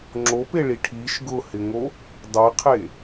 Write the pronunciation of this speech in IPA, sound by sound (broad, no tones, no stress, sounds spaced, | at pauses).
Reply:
ŋ͡ǁ o p e ɭ i ʈʰ i ʃ ɡ ʊ h ɪ ŋ o | dˤ e qʰ e